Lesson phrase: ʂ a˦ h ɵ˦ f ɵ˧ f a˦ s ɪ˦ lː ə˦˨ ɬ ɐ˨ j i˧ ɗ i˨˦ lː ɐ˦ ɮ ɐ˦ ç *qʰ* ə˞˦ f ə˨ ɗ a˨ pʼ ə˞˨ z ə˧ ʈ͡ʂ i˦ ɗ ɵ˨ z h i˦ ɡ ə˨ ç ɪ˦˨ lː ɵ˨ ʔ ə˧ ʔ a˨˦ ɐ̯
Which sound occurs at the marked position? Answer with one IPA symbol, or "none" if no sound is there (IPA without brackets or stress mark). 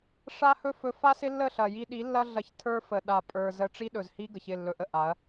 tʰ